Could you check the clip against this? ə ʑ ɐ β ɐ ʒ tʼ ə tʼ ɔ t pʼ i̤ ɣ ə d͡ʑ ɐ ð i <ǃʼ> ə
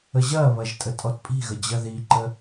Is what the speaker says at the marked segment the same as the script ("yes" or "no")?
no